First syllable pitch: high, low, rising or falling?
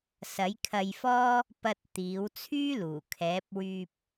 rising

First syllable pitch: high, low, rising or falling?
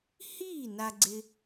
falling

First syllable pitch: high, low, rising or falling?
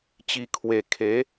low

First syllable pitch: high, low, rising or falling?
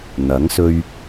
rising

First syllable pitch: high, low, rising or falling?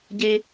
high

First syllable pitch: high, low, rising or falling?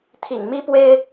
low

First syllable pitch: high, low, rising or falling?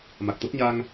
low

